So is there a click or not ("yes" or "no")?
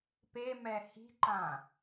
yes